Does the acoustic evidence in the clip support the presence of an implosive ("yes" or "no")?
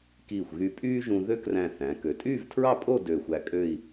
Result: no